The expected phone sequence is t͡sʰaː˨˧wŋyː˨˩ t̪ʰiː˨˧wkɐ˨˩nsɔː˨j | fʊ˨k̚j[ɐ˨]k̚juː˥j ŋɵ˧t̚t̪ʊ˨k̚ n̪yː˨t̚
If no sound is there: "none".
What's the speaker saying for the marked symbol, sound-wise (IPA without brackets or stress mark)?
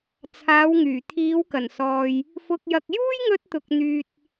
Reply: ɐ˨